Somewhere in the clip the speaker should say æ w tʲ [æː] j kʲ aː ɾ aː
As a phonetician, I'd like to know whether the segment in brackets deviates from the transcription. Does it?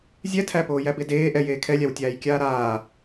no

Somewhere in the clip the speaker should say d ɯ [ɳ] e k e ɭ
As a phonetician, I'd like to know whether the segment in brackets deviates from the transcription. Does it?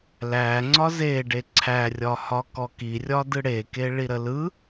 yes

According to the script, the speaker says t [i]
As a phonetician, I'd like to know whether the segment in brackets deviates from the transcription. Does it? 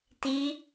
no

